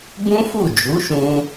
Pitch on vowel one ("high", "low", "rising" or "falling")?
high